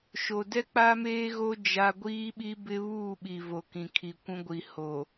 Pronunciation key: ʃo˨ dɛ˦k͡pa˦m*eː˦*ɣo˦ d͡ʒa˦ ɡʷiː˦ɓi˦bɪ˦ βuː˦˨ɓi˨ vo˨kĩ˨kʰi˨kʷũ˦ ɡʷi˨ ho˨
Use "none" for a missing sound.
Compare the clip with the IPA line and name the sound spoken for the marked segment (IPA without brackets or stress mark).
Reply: eː˦